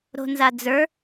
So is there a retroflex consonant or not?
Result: no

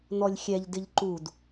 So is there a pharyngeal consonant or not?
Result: no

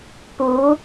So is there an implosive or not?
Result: no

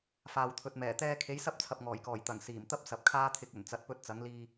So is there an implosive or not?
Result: no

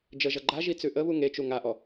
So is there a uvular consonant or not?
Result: no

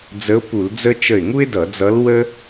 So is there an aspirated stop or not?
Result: no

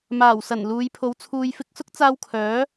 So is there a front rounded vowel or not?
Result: yes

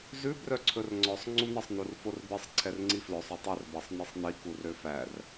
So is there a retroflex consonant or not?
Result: no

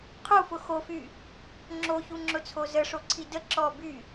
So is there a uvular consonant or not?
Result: yes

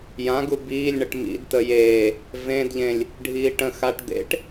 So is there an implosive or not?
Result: no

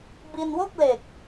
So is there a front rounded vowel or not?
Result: no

